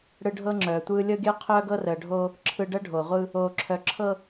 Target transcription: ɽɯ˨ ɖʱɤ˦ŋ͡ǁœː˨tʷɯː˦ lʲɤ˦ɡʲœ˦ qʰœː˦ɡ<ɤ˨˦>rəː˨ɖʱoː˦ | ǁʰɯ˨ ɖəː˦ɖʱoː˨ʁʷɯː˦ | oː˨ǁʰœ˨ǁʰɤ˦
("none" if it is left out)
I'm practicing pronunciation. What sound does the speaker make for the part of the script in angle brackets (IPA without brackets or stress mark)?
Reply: ɤ˦